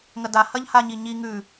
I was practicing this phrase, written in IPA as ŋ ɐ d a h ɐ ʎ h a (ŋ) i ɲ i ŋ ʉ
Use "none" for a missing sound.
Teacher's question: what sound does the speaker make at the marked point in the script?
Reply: ɲ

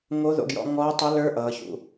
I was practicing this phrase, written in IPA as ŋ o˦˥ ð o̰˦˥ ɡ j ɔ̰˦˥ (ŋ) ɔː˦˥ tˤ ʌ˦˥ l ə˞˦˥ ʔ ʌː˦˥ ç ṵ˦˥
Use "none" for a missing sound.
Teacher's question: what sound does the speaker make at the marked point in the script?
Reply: ŋ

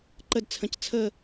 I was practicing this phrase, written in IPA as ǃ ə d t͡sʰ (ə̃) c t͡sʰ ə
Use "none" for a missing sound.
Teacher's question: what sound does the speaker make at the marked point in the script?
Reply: ə̃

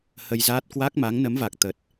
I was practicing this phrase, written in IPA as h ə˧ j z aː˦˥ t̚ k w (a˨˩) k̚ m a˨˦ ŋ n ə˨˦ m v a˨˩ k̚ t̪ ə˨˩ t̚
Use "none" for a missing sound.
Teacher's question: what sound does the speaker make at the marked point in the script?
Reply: a˦˥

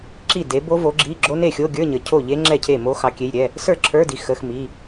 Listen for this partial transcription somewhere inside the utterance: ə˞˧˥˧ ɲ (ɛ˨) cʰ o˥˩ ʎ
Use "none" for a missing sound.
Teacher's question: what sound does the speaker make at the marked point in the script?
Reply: ə˨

